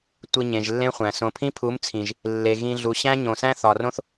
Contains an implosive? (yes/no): no